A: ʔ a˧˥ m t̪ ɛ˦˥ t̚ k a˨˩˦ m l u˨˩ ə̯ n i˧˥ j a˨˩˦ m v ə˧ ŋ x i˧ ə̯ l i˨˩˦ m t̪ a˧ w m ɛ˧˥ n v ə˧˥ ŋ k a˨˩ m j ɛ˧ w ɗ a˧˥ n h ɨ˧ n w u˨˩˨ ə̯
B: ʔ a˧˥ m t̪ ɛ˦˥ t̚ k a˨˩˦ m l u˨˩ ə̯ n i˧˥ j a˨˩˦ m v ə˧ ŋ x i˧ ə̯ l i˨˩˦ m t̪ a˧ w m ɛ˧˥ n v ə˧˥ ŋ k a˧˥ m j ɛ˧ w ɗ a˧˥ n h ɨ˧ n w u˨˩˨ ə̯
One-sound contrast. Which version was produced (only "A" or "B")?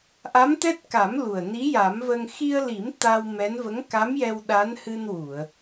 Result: B